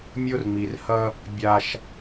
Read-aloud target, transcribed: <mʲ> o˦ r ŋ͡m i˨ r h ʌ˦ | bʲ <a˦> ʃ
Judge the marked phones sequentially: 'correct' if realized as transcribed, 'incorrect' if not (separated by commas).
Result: correct, correct